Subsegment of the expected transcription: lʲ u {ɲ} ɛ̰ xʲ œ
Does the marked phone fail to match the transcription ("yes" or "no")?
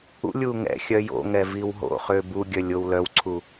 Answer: yes